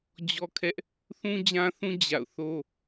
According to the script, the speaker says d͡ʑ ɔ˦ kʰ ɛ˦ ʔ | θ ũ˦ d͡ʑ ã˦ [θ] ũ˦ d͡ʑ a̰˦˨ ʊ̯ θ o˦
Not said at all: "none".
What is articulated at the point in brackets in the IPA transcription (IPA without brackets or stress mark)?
θ